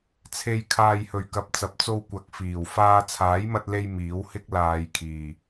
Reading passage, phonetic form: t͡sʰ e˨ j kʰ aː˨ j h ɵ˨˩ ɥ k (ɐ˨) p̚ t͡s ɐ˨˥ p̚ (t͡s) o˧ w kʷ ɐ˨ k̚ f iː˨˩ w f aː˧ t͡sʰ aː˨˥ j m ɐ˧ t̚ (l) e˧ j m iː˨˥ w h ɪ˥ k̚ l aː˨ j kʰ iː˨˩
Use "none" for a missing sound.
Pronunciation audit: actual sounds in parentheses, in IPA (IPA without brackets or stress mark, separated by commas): ɐ˨, t͡s, l